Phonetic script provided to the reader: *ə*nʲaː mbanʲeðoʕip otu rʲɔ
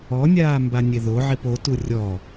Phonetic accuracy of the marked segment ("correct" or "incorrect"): incorrect